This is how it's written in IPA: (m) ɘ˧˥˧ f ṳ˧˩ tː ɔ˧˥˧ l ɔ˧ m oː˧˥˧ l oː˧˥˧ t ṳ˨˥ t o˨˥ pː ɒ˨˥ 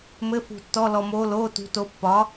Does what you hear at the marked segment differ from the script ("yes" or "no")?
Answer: no